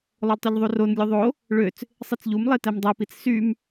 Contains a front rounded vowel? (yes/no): yes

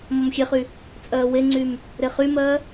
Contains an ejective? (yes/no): yes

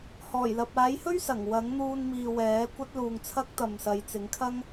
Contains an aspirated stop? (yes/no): yes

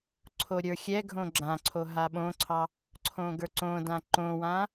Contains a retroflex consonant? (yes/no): no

